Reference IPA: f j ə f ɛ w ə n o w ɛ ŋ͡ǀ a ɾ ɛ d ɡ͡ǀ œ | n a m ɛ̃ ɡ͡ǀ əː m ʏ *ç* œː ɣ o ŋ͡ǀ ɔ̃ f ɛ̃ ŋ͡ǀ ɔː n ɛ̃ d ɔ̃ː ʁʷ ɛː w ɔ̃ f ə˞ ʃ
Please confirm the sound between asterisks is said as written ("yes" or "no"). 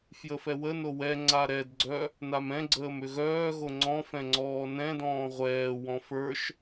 no